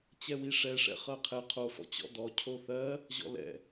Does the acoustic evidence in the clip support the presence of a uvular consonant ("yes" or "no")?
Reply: yes